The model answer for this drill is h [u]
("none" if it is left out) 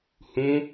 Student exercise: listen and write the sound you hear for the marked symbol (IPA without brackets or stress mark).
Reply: ũ